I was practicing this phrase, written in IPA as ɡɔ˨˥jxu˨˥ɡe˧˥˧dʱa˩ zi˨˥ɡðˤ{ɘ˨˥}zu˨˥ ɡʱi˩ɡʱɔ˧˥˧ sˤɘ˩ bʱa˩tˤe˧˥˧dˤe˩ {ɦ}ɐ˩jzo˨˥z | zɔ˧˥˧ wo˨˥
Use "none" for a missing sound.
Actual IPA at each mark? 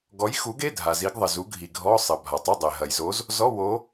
ɘ˩, ɦ

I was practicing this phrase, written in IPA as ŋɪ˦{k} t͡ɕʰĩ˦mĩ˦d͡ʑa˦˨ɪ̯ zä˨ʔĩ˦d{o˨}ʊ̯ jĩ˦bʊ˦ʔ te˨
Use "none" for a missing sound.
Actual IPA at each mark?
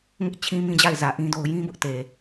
ʔ, o˦

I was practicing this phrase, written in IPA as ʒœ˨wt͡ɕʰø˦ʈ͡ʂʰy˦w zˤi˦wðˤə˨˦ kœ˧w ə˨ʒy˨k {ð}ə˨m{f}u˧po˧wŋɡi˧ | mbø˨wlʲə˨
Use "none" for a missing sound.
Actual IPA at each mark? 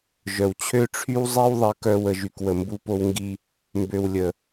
w, b

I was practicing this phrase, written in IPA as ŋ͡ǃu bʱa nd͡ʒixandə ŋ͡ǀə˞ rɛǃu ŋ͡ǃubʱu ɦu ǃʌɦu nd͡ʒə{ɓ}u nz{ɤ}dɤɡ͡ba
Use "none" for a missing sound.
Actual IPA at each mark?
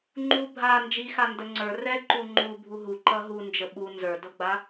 ɓ, ə˞

